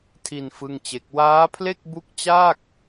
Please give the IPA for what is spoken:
tʰi˧n fɯ˥˩ŋt͡ɕe˦˥k̚ waː˦˥pʰle˥˩k̚bu˦˥k̚ t͡ɕaː˥˩k̚

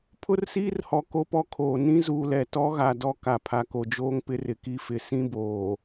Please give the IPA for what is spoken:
pʰʊ˦rsiː˦rhɔ˨ ko˦pɔ˦kʰoː˨ nĩ˦zuː˨lɛ˨ tɔ˦ɣa˨dɔ˦ ka˨pʰa˨ko˨d͡ʒoː˦ŋ pɪ˦rɪ˨ki˦fɪ˨˦ sĩ˦boː˨

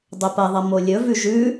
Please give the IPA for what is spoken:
dˤɵpɐðˤɐ molʲɵvʉ ʒʉ

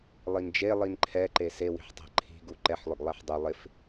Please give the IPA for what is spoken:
lˠind͡ʒe lˠinǃʰɛ ǃesewi̤ħ tˤɛ̤ǃʰi̤ɡu ǃɛħlˠʊɡlˠɛħ dˤʊ lˠɪf

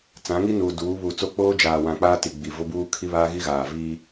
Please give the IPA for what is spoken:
t͡sã˨˦ŋi˦ nuː˨ duː˨˦βuː˨ t͡so˦k͡poː˦ d͡ʒaː˨wã˨ k͡paː˦ti˨ ɡ͡bi˨vʊ˦buː˦ kʰi˦βaː˦ɣi˦ɣaː˨ vi˦

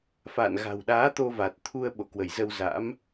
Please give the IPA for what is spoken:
fa̰ː˧˨n ɣa̤˨˩wɗaː˨˦ t̪o˧va˨˩t̚ t̪ʰu˧ə̯ ɓo̰˧˨kwə˧˩jzə˧wza̰˧˥m

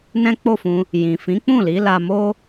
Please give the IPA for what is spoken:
nɛ̃˦k͡po˦˨fũ˧ | jĩ˨fĩ˨˦k͡pũ˦˨ li˨˦la˧mo˦

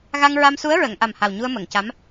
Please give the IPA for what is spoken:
ɣa˧ŋ ɹa˧msu˧˥ə̯ ɹə˨˩˨ŋ ʔa˨˩mha˨˩w ɲu˧ə̯mə˨˩˨ŋca˧˥m

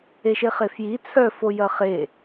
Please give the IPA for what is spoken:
eʃeχefji t͡sʰœfo jɐχe

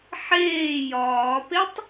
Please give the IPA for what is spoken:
ħeː jɒːpetˤ

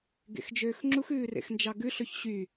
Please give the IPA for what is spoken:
ɡḛxd͡ʒøːxŋ͡ǁux ʉːrḛxnd͡ʒɑɡʉ ɬɵçɕy

